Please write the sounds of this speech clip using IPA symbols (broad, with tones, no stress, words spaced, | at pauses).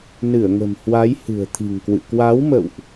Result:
nɨ˧˩ə̯ŋə̤˨˩mhwa˨˦j hɨ̤˨˩ə̯t̪ʰi̤˨˩ŋkwɨ̰˧˨ kwa˨˦wmə̰˧˨wʔ